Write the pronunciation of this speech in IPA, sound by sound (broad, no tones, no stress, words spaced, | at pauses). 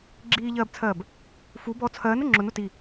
ɡ͡ǁiːʎɜːbt͡sʰɜːb | fu bɔ t͡sʰɜːnʊ ŋ͡ǁʊnʊ ti